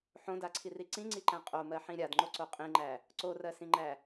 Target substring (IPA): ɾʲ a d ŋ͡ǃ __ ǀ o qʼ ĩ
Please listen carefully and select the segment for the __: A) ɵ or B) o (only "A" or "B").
B